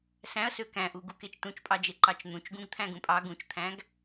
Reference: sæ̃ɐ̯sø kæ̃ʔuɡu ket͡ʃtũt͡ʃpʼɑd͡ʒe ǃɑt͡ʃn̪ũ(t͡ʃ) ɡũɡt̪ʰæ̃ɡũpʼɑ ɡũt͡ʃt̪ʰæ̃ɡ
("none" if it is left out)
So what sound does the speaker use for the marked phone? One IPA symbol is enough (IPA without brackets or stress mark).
t͡ʃ